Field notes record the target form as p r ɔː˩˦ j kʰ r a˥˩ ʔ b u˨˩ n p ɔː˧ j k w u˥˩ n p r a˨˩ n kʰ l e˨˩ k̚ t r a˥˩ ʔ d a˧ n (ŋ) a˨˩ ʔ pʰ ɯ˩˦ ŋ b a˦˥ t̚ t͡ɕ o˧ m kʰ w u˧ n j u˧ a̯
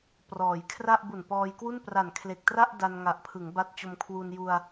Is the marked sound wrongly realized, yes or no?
no